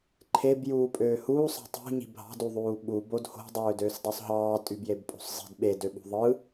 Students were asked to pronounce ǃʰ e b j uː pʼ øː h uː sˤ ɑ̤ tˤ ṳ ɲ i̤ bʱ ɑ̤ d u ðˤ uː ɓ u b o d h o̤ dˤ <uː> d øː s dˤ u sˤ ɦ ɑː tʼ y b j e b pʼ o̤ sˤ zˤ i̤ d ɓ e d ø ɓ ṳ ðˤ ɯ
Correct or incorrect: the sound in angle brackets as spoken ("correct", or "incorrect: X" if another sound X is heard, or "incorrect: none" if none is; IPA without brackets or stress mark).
incorrect: øː